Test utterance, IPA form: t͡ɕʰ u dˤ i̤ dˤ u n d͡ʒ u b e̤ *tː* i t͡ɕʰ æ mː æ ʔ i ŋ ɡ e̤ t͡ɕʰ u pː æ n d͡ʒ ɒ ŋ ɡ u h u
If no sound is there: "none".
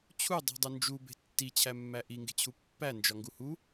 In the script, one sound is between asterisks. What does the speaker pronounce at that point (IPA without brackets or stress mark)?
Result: tː